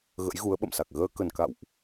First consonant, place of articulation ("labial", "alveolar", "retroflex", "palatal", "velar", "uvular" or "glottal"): velar